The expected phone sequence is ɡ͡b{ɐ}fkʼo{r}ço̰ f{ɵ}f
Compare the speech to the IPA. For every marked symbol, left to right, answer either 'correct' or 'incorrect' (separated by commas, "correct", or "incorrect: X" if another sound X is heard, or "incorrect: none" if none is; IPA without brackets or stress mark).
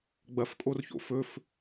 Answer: correct, correct, correct